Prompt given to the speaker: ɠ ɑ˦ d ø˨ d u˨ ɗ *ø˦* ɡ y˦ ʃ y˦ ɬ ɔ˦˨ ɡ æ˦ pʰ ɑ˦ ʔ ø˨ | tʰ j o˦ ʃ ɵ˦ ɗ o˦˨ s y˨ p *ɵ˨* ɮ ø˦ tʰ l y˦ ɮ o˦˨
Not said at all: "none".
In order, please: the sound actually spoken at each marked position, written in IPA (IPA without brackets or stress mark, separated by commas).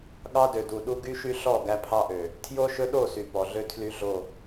u˦, ɔ˨